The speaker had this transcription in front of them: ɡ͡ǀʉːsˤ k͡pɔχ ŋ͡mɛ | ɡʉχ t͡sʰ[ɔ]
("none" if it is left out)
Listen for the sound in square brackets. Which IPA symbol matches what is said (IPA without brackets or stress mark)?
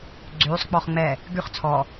ɔ